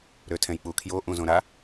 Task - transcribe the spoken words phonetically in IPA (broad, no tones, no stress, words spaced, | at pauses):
ɾøtʰɛ̃jk͡pukʰjo ʔũzõɾa